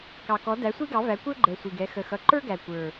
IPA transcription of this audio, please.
k ɑ˨˩ k ɔ˨˥ d æ˨˥ sʷ i˥ ɡ ɑ˨˥ v æ˨˥ kʷ ə˞˥ ɡ͡ǃ ɛ˨˩ sʷ i˨˩ ɡ ɛ˨˥ x ə˨˩ x ʌ˨˥ ǃ ə˞˥ ɡ æ˨˩ kʷ ə˞˨˩

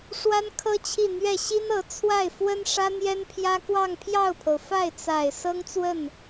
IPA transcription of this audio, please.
ʂ w a˥ n kʰ ɤ˥ t͡ɕʰ i˥˧ n̪ ɥ ɛ˥˩ ɕ i˥ n ɤ˧˥ t͡sʰ w a˥˩ ɪ̯ f w ə˥ n ʂ ä˥ n̪ j ɛ˥ n pʰ j ä˥ k w ɑ˥˧ ŋ pʰ j ɑ˥˩ ʊ̯ pʰ o˩ ʊ̯ f a˥˩ ɪ̯ t͡s a˨˩ ɪ̯ s ɤ˥ ŋ t͡s w ə˥˩ n

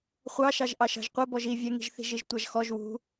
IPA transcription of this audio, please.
χʷ ɑ ʃ ɑ ʒ ʔ ɑ ʃ ɑ̤ ʒ qʷ ɛ b ɔ ʒ i vʲ ɛ ŋ i̤ ʒ θ i̤ ʒ i ʒ tʷ ɑ ʒ x ɔ ʒ w ṳ

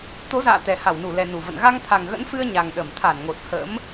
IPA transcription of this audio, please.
t̪ o˨˦ z a̰ː˧˨ t̪ ɛ˨˩ h a˧˩ w n u˧˩ l ɛ˨˩ n u˧˩ v ə̰˧˨ n ɣ a˧ ŋ t̪ʰ a˨˩ ŋ ɣ ə̰˧˥ n f ɨ˧ ə̯ ɲ a˨˩ ŋ ɗ ə˧˩ m t̪ʰ a˧˩ n ŋ o˨˩ t̚ h ə̰˧˥ m

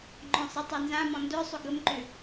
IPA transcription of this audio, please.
ŋ͡ǃ ɔ̃ sˤ i tˤ ɤ n z ã m ɔ̃ n d œ sˤ ʏ ɡ ə m ǃ ʏ

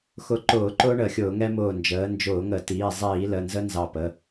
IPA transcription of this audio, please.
x ʊ˧˩˧ ǃ ʊː˧˩˧ ǃ ʊː˦ ɳ ə˧˩˧ xʲ ʊː˧˩˧ ŋ ɛ˦ m ʊː˧˩ n d͡ʒ əː˩˧ n d͡ʒ ʊː˧˩˧ ŋ ə˧˩˧ t iː˩˧˩ zˤ iː˧˩˧ l ə˩˧˩ n z ə˦ n z ɑ˧˩ p ə˩˧˩

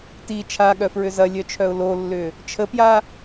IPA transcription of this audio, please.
t i t͡ʃʰ a ɠ œ f ɹ ʏ z ɐ lʲ œ t͡ʃʰ œ ʊ̯ l o lː ʏ | t͡ʃʰ ə p j a

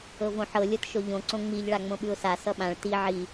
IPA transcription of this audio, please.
ɤ v õ ħ ɤ lʲ ɤ t ʃ o ʎ õ ǀ õ ŋ͡m i ʎ ɭ a ŋ͡m õ ɓ ʉ ʊ̯ s a s ʌ ɓ ã ɭ t i ʕ i

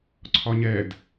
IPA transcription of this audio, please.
ǀʰ ɒ ɲ ɛ d

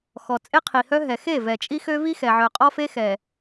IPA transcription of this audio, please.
x ɔ˨ t͡sʼ e˦ qʰ i˨ h œ˦ ɦ ɛ˨ x e˦˨ v ɛ˨ t͡ʃʼ i˦ x ø˦ v i˦ x ɛ˨ ʕ œ˨ qʼ ɔ˦ f e˦ x ɛ˨

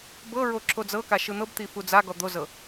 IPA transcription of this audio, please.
b ɤ ɹ o ǁ o d͡z ɤ k a ʃ ɯ n̪ ɤ b t̪ i f u d͡z a ɡ ɔ d̪ o z ɤ

